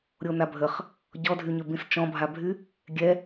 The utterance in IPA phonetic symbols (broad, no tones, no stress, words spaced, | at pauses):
ɾʲonabʱəχ | ɟɔdʱyɲøbĩs t͡ʃɔ̃bʱabʱy | ɡʲɛ